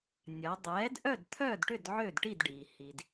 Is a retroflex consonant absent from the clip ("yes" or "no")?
no